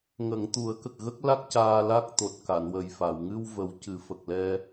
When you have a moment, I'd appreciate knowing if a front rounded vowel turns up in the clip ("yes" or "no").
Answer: no